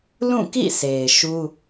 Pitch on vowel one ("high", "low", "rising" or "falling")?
falling